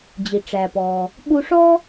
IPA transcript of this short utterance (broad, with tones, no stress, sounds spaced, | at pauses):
d͡ʑ i˩ ʈ͡ʂ æ˩ p ɔː˩ | ɓ u˧ ʂ ɔ˥